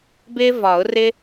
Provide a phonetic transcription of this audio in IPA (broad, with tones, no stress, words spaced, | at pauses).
bɪː˥vɒ˨˩˦ʊ̯rɪ˥